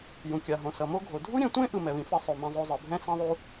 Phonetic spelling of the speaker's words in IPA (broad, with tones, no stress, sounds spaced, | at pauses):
j ũ˩ kʲ a˩ ɦ õ˩ s ʌ˩ m o˥ ɡʱ o˩ dʱ u˥ ɾʲ ɛ̃˧ tʷ ẽ˥ ʔ ɯ˧ m ɛ˩ β ĩ˧ f ɛ˥ sˤ o˩ m ɛ̃˧ zˤ o˧ zˤ ɯ˩ bʱ ɛ̃˥ s ẽ˥ ðˤ u˥